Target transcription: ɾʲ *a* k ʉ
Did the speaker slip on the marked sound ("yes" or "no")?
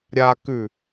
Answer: no